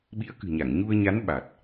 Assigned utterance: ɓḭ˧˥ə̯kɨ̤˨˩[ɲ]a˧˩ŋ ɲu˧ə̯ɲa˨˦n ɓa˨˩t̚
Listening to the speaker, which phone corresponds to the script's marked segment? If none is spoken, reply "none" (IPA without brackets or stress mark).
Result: ɲ